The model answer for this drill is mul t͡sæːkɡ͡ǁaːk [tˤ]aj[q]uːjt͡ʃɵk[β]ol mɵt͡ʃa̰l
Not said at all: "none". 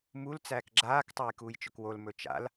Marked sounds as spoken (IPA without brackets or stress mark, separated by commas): tˤ, k, w